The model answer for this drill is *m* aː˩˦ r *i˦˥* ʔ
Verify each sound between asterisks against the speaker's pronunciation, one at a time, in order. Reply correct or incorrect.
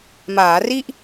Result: correct, incorrect: i˥˩

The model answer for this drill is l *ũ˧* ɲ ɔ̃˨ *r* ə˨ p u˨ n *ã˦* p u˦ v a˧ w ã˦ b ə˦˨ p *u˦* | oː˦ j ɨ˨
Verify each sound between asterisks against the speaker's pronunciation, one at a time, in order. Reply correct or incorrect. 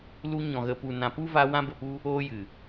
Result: incorrect: u˧, incorrect: ɣ, incorrect: ã˨, correct

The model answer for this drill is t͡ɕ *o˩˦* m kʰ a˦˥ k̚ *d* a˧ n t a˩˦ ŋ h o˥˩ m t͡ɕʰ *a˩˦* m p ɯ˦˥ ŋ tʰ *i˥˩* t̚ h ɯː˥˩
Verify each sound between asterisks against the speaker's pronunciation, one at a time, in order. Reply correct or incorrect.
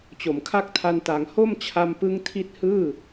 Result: correct, incorrect: tʰ, incorrect: a˧, incorrect: i˦˥

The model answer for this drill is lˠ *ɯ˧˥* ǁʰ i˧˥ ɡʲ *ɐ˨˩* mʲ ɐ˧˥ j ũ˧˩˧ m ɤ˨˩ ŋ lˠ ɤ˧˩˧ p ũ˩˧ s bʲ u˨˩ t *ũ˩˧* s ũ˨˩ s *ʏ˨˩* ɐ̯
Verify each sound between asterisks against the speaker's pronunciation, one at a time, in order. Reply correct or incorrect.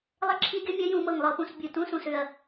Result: incorrect: ə˧˥, incorrect: ɐ˧˥, incorrect: ũ˧˥, correct

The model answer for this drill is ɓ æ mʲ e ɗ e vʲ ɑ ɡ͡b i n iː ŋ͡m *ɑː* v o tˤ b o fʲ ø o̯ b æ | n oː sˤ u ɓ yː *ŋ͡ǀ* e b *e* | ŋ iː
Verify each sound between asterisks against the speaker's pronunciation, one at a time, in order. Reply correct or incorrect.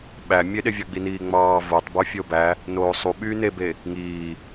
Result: correct, incorrect: n, correct

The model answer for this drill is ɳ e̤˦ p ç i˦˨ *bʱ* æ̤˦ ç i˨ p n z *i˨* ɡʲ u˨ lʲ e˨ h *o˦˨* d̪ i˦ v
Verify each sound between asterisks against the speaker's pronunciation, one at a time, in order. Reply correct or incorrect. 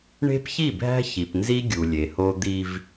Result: correct, incorrect: i˦, incorrect: o˦

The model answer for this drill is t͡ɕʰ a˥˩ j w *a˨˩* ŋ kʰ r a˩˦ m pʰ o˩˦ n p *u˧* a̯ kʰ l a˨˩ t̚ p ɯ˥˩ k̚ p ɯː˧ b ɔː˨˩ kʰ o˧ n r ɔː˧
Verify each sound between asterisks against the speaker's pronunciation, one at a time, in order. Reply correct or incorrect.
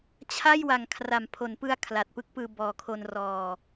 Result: correct, incorrect: ɯ˧

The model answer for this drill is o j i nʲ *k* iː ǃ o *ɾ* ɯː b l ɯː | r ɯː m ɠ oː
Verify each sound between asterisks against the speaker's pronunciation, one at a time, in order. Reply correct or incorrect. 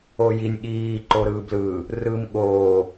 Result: incorrect: ɠ, correct

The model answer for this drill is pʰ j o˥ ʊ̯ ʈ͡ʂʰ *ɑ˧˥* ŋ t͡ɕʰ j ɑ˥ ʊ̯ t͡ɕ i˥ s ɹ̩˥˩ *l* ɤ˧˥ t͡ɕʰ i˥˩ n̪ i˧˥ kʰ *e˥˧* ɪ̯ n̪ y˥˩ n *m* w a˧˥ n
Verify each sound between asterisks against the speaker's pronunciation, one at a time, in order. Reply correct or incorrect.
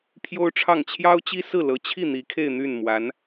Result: incorrect: ɑ˥˩, correct, correct, correct

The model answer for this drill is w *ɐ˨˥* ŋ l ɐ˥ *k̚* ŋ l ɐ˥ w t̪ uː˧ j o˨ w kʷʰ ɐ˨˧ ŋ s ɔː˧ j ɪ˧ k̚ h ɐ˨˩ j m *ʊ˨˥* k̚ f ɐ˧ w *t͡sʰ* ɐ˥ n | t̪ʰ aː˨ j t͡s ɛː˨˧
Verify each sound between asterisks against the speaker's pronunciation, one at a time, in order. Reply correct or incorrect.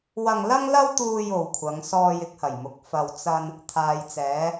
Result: incorrect: ɐ˧, incorrect: none, incorrect: ʊ˨, incorrect: t͡s

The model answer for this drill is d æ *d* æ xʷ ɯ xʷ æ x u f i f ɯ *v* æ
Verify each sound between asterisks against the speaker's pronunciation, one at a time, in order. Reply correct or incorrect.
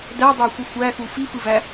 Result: incorrect: dˤ, correct

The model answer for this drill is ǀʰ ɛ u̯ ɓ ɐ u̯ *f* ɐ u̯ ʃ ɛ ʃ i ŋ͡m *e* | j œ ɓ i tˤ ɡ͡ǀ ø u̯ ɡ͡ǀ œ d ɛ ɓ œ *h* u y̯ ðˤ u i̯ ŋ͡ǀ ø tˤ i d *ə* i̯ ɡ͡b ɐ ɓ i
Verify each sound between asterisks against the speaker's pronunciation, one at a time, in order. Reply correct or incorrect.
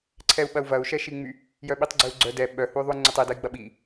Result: incorrect: v, incorrect: y, correct, incorrect: ɐ

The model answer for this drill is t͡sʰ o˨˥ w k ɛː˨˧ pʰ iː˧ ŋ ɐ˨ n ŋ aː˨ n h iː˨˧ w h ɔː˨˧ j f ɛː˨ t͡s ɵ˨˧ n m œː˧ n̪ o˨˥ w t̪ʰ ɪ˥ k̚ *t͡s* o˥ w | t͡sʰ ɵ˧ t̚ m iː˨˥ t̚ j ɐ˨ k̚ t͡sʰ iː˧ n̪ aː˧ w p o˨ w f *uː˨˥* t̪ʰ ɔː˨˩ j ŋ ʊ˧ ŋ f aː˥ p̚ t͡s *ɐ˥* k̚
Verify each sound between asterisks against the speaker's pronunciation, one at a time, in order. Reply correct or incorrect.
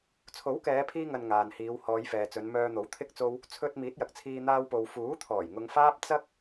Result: correct, correct, correct

